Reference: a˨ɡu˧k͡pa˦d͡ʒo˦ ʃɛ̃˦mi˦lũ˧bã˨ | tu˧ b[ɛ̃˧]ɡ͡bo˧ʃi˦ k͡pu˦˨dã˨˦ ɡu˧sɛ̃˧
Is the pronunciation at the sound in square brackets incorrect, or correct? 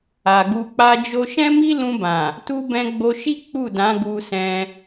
correct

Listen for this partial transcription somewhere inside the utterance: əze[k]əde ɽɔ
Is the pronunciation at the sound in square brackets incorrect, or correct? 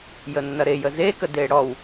correct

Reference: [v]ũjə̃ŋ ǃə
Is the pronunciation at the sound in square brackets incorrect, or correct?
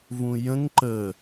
correct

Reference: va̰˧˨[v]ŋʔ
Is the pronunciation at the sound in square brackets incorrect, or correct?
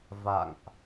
incorrect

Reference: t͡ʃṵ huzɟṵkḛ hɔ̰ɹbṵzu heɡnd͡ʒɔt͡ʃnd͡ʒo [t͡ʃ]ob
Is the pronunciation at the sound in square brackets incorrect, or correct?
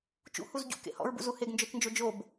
incorrect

